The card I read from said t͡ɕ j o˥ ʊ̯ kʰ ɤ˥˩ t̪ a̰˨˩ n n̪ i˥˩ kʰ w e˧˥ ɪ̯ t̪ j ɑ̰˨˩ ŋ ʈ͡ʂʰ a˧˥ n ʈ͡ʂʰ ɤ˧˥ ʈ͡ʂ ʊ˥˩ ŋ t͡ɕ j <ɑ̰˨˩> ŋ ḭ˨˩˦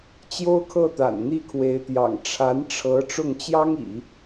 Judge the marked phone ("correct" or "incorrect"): incorrect